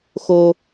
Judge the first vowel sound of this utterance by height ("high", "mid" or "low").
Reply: mid